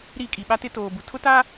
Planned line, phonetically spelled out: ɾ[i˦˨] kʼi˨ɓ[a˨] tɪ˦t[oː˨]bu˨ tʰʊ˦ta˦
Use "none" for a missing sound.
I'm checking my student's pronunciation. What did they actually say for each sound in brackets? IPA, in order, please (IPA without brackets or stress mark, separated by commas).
i˦˨, a˦, oː˨